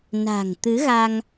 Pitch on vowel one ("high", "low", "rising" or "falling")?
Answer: low